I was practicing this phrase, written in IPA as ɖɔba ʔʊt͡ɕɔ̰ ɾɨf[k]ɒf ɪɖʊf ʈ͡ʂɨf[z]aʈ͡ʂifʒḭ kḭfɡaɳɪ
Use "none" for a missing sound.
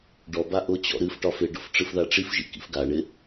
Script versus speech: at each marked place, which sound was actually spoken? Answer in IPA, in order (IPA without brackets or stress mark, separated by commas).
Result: ʈ, ð